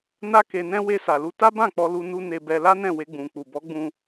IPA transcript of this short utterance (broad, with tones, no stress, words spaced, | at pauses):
na˦ke˧nɛ̃˦ we˧sa˨lu˧ ta˦bã˦˨k͡pɔ˧ lu˧ nu˦ ne˧bɛ˧la˦nɛ̃˦˨ we˧ɡ͡bũ˨ k͡pu˨bɔ˨˦ɡ͡bũ˧